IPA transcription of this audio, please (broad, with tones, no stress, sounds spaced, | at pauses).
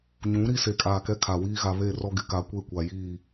ɲ ũ˨˦ ɾ i˦ s e˨ kʼ aː˨ k ɛ˦ kʰ a˨ w iː˦ ɣ a˨ β e˦˨ r ɔ˦ ɡ ɪ˨ k a˨ kʷ e˦˨ kʷ a˨ j iː˦˨